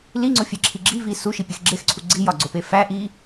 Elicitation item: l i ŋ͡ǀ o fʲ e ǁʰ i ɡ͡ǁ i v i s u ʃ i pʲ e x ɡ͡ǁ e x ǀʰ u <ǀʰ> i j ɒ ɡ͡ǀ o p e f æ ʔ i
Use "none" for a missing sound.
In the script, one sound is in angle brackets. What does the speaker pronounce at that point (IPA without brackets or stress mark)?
ɡ͡ǀ